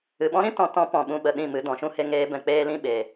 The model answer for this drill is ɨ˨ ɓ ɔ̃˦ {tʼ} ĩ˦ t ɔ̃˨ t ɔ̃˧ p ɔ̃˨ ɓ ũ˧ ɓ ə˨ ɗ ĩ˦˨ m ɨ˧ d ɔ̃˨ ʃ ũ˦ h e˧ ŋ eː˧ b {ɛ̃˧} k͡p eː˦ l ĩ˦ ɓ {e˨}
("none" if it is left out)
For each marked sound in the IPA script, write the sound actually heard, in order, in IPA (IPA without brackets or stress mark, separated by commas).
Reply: ɾ, ɛ̃˨, eː˨